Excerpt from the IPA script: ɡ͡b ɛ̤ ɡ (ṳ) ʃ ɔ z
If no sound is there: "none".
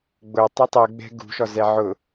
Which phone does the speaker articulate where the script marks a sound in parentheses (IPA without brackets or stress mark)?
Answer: ṳ